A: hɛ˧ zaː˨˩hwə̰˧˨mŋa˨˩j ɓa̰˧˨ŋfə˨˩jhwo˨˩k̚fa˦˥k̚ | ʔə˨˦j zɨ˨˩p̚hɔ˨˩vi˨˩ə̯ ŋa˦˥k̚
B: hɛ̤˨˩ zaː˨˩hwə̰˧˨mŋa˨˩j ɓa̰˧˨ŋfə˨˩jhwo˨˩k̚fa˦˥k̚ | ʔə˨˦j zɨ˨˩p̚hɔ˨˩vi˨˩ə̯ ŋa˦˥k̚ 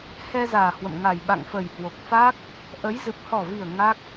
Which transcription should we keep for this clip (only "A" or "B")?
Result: A